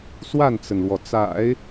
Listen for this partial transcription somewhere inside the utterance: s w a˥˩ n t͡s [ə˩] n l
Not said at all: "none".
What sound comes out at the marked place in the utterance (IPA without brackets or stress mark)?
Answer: ə˩